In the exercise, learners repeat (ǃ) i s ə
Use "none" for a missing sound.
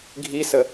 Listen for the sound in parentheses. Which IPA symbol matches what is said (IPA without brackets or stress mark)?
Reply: ɡʱ